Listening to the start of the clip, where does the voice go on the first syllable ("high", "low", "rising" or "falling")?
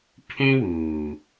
high